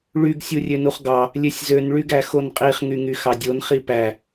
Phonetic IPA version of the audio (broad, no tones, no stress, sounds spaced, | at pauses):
ɭ y ɡ sʲ u rʲ ø n u χ ɡ ɑ | lʲ ø sʲ z ø n ɭ y ɡ æ x o n qʼ i χ ŋ y ŋ y x ɑ dʲ o n χ i p æ